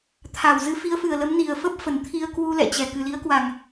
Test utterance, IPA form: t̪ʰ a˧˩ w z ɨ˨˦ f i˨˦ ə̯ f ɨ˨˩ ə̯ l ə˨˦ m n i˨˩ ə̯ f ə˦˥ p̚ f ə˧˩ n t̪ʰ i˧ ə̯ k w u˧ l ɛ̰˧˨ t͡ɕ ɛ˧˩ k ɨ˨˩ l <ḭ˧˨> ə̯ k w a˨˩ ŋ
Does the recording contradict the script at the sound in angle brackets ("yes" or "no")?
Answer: yes